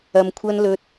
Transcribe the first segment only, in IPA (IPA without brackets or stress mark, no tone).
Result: ɐ